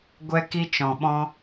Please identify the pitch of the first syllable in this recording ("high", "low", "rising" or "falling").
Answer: high